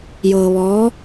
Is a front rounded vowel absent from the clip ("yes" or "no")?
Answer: yes